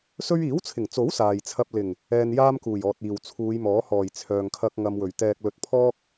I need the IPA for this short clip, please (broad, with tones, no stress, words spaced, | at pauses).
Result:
sɵ˧ɥiː˨˥wt͡sʰɪ˨˩ŋt͡so˨˥w saː˨jt͡sʰɐ˧p̚lɪ˨˩ŋ | ɛː˧njaː˥mkuː˨˩j ɔː˨t̚iː˨˩w t͡sʰuː˨˧jmɔː˨˥hɔː˨˩j t͡sʰœː˨ŋkʰɐ˧k̚ ŋɐ˧mwɵ˨˩ɥ t̪ɛː˨k̚lɵ˨t̚ pʰɔː˥k̚